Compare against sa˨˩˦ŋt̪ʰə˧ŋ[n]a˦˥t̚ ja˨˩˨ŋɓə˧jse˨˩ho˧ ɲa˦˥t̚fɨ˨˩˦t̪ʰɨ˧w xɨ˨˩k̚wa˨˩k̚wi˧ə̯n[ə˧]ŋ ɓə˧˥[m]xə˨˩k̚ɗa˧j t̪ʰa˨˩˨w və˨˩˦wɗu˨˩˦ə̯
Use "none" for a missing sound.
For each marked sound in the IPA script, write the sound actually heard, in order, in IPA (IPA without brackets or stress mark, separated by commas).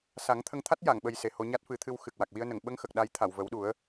t̪ʰ, ə˨˩˨, ŋ